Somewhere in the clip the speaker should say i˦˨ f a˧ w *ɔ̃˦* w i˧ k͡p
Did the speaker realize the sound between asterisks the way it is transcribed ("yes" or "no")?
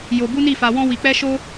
yes